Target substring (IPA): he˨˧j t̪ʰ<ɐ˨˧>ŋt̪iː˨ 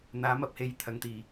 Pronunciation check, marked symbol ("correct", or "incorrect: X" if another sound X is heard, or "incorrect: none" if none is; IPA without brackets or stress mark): correct